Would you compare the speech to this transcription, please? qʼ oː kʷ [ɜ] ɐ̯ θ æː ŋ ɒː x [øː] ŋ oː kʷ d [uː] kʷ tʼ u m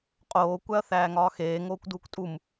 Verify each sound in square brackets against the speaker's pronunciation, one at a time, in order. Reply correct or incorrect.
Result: incorrect: æ, incorrect: eː, correct

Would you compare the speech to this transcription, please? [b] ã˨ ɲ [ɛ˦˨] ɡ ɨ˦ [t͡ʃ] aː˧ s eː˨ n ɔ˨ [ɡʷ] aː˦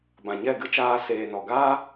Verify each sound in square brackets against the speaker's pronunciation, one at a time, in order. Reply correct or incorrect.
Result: correct, correct, correct, incorrect: ɡ

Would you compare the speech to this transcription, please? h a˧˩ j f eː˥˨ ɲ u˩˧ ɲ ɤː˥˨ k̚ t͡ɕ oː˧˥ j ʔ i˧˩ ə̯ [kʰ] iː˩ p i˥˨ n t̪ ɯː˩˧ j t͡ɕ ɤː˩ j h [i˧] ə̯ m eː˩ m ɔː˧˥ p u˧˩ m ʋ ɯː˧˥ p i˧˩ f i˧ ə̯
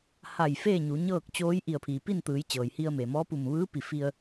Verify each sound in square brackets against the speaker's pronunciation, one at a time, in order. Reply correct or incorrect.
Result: incorrect: pʰ, correct

